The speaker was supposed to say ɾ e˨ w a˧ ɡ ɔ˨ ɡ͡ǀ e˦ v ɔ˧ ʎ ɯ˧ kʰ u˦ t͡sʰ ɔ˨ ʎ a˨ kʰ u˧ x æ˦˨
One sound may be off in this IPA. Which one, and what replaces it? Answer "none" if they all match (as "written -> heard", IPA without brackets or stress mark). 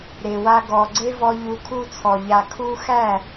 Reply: ɯ˧ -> u˧